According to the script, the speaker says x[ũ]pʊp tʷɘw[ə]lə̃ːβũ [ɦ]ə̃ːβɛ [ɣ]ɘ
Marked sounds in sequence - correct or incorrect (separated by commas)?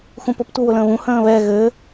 correct, incorrect, incorrect, correct